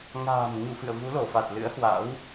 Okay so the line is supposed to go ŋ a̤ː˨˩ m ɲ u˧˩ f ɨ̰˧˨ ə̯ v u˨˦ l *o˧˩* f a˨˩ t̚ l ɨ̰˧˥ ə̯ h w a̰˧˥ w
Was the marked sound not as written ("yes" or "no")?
no